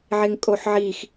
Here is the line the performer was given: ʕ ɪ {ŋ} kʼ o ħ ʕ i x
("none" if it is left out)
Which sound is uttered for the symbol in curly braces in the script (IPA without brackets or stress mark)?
ŋ